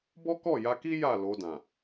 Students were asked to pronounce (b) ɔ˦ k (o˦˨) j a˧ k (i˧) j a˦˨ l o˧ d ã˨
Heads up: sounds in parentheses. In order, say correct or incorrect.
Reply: correct, incorrect: ɔ˦˨, incorrect: i˦

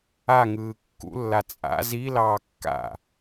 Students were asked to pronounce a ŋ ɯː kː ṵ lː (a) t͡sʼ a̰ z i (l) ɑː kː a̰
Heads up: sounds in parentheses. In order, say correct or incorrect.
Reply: correct, correct

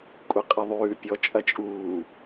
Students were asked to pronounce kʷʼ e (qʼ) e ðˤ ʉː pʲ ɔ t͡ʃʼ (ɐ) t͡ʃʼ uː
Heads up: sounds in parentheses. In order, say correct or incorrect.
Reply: correct, correct

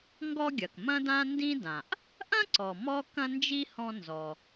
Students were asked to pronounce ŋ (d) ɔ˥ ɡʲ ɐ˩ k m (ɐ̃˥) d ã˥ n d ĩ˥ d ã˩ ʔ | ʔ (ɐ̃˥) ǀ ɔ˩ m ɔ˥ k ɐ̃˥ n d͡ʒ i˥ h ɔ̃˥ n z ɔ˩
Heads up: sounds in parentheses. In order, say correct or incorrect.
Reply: incorrect: ɡ, correct, correct

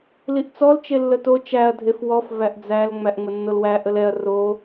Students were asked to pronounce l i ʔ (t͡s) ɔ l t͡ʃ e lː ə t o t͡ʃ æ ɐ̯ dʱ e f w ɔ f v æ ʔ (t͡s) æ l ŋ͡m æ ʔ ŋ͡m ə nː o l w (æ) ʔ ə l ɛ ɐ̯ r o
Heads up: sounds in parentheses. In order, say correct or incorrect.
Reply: correct, incorrect: d͡z, correct

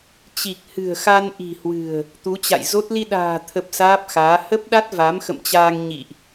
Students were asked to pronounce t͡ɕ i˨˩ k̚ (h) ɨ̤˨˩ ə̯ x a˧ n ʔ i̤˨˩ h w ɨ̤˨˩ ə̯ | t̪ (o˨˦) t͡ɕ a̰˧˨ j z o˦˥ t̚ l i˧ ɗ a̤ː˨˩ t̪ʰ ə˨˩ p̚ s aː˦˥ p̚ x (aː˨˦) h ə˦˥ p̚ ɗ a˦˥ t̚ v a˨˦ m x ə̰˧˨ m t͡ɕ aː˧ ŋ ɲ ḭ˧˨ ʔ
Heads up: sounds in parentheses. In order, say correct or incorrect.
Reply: correct, incorrect: u˨˦, correct

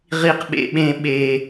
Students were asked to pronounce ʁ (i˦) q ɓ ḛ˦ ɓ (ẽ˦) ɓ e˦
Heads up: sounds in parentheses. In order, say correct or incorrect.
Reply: correct, correct

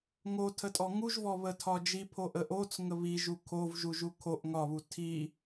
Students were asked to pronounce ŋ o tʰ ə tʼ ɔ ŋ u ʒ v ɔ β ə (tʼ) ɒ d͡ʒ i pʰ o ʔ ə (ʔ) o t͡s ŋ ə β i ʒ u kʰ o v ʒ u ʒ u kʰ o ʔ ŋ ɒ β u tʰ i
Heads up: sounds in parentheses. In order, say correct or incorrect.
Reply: incorrect: tʰ, correct

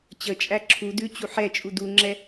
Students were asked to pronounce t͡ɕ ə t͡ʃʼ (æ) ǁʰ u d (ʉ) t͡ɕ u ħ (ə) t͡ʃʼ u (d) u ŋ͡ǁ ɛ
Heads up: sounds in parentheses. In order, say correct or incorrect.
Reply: correct, correct, incorrect: ɛ, correct

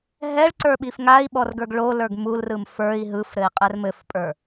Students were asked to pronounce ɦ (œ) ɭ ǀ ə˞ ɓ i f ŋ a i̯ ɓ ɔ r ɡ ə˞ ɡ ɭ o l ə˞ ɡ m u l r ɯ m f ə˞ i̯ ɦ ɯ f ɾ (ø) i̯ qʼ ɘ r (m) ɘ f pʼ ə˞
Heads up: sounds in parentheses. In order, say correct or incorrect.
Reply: incorrect: ɛ, incorrect: ɘ, correct

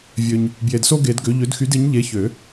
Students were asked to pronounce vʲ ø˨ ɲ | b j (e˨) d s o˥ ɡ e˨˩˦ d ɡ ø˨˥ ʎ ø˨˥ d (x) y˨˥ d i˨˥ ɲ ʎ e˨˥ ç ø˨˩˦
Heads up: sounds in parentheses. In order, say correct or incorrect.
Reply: correct, correct

